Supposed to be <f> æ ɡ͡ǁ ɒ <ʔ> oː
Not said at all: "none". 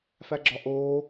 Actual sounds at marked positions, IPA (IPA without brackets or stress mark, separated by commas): f, ʔ